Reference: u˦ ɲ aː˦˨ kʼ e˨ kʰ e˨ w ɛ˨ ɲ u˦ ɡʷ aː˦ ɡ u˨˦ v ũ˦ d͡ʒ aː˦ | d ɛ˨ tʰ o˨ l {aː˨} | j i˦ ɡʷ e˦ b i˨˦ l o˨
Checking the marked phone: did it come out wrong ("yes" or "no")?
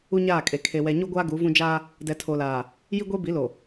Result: no